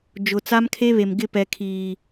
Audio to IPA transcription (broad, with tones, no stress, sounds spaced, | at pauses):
d͡ʒ ʊ˨ t͡s a˦ m kʰ e˦ β e˨ m ɡ ɪ˦˨ p ɛ˨ kʰ iː˨